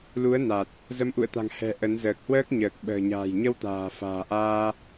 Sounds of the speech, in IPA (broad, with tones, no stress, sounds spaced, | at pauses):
l u˨˦ ə̯ n a˨˩ t̚ | z ə˨˦ m ʔ ṵ˧˨ ə̯ t̪ a̤˨˩ ŋ h ɛ̤˨˩ ʔ ə˨˦ n z əː˨˩ k̚ h w əː˦˥ k̚ ɲ əː˨˩ k̚ ɓ ə̤ː˨˩ ɲ a̤ː˨˩ j ɲ ə˧ w t̪ a̤ː˨˩ f a̤ː˨˩ ʔ aː˧